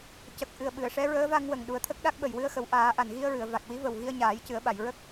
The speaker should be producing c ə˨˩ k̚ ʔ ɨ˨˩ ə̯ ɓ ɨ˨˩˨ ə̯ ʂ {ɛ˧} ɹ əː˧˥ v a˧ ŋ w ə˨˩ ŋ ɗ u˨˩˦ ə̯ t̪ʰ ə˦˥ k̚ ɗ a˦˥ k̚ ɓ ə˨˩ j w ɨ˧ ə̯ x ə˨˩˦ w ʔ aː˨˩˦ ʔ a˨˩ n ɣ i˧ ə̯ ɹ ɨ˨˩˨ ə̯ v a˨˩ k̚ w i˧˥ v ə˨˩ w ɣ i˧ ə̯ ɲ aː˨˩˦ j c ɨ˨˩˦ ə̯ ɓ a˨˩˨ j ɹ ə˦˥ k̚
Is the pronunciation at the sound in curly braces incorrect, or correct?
incorrect